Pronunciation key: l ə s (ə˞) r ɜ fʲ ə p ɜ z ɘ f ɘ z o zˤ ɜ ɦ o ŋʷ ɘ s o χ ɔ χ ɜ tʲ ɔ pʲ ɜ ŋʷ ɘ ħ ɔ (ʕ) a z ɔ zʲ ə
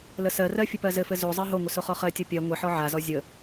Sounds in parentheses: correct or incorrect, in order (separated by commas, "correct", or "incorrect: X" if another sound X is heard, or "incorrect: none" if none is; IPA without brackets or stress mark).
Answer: incorrect: ɜ, correct